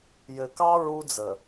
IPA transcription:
j ɘ˨ k ɑ˦ ɹ u˦ d͡z ə˨

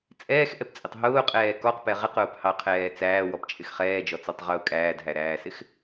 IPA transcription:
t͡sʼ ɛː x ʔ ɛ p t͡sʼ ɪ tˤ ɦ ʊː qʼ ɛː k ɔ q p ɛ ʁ ɪ q ʊː p h ɑ qʰ ɛː t͡s æː w ɔ p t͡ʃʼ ɪ x χ ɛː d͡ʒ ɔ t͡s ɔ tˤ ʁ ʊː kʼ æː d ɦ æ ɾ æː s ɪ x

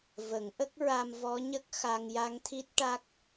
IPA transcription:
v ə˨˩˦ ŋ ʔ ə˦˥ k̚ ɹ a˧ m v ɔ˧˥ ɲ ə˦˥ k̚ x a˧ ŋ j a˧ ŋ t̪ʰ i˦˥ t̚ ʈ a˦˥ k̚

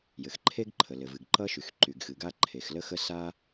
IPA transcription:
j ɘ˩ x ǃʰ e˥ ɡ ǃʰ ə˩ l ɘ˩ v ɨ˩ ɡ ǃ ʌ˥ ʃ y˩ x ǃ y˩ ɡ x ɨ˩ ɡ a˥ ǃʰ e˩ x l ə˥ x ə˥ s a˥

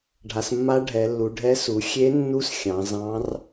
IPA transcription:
ɖʱ a˩˧ s mː a˧˥ ɖʱ ɛ˩˧ lː u˩˧ ɖʱ ɛ˧˥ s u˩˧ xʲ e˧˥ nː u˧˥ s xʲ ɑ̃˩˧ z ɑ̃˧˥ r

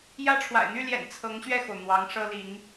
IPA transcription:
j ä˥ ʈ͡ʂʰ w a̰˨˩ ɪ̯ n̪ y˥˩ l j ɛ̰˨˩ n t͡sʰ ɤ˧˥ ŋ ɕ ɥ ɛ˥˩ x o˩ ʊ̯ n̪ w ɑ˧˥ ŋ ʂ ɤ˥ l i˧˥ ŋ

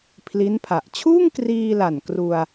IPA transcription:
pʰ l i˦˥ n pʰ a˨˩ ʔ t͡ɕʰ uː˥˩ ŋ k r iː˧ l a˨˩ n k r u˧ a̯

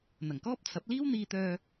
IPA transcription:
n̪ ɐ˨˩ ŋ k ɔː˥ p̚ t͡sʰ ɐ˨˥ p̚ l iː˥ w n̪ iː˧ t̪ œː˧

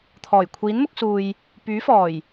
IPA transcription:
t̪ʰ ɔː˨˩ j kʷʰ iː˨˥ n m ʊ˧ k̚ s uː˨ j | p yː˨˥ f ɔː˨˩ j

